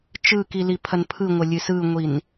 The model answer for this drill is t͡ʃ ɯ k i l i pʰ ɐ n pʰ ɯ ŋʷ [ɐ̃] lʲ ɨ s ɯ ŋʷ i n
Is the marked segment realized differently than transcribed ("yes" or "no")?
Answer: yes